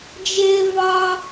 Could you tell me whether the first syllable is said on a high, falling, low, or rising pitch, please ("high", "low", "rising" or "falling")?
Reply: high